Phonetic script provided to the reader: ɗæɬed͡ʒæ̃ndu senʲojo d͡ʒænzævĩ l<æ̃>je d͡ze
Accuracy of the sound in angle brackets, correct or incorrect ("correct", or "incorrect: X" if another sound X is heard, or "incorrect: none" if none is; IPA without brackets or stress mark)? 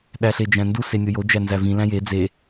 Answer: correct